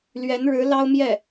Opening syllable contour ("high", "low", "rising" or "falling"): rising